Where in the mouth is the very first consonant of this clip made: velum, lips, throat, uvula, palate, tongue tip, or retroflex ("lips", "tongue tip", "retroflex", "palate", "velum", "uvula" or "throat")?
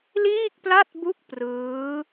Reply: tongue tip